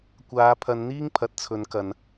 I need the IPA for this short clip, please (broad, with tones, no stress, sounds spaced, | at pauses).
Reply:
kʷ aː˨˧ pʰ ɐ˨˧ n n̪ iː˥ ŋ pʰ ɐ˨˥ t̚ t͡sʰ ɵ˨˧ n k ɐ˨ n